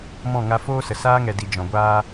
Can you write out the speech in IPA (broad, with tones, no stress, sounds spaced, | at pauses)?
m ɔ̃˦˨ ŋ a˧ f oː˦ s ə˨ s aː˦ ŋ ɛ˨ d i˨ d͡ʒ ɔ̃˨ ɡʷ aː˦